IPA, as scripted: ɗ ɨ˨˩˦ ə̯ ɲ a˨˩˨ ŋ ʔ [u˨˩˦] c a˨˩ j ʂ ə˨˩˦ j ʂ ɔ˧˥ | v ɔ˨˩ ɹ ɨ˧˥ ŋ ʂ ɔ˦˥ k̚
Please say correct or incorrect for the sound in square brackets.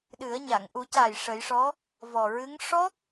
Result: correct